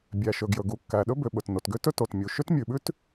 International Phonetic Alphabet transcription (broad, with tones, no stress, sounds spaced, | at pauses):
bʲ æ˩ ʃ ɵ˩ ɡ j ɵ˩ ɡ u˩ kː æ˩ ɗ ɵ˥ b ʏ˩ ɓ ɵ˩ t n o˩ t ɡ ʏ˥ t ɵ˥ t o˩ t mʲ u˩ ʃ ʏ˥ t mʲ ʉ˩ ɓ ʉ˥ t